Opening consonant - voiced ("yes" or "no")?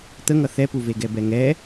no